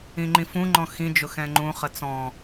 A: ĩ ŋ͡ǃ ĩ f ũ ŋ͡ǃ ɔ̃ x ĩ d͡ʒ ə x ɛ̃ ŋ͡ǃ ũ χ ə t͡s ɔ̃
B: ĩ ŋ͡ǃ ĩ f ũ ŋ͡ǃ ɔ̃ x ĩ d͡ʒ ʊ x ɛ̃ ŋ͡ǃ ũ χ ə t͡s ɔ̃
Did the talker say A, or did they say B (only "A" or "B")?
B